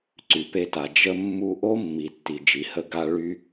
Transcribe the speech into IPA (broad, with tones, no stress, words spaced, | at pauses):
ǀy˩pe˧ta˩ d͡ʒə˧mːu˧ ʔo˥mːi˩ tːi˩d͡ʒi˩hə˧ ɡa˧ɭy˧